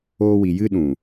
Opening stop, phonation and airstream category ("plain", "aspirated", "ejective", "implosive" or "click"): implosive